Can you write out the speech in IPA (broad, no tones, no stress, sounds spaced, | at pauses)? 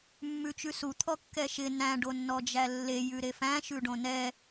mː ʉ t͡ʃ ʉ s u t̪ʰ ɔ kː ɛ ʃ ɪ n æ̃ ɖ o nː ɔ d͡ʒ æ lː e j ʉ ɾ e f æ̃ ʃ ʉ ɖ õ n ɛ